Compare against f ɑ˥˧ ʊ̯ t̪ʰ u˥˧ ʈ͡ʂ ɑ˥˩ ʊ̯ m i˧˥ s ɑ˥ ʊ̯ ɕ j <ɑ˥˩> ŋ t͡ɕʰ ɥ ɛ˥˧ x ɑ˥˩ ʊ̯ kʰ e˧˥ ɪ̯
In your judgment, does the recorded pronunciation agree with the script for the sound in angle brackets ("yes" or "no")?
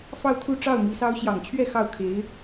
no